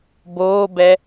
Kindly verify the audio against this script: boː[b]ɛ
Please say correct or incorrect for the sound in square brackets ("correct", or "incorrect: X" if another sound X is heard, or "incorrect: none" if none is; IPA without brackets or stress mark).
correct